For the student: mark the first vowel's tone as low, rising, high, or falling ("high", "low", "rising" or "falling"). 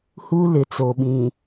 high